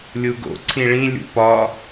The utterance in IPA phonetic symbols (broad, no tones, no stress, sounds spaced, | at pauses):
lʲ u ɡ o̰ ǀʰ ĩ ɭ ĩ lʲ ṵ p ɒ